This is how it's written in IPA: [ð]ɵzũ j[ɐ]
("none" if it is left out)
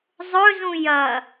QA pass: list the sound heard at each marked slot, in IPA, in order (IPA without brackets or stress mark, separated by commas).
zˤ, ɐ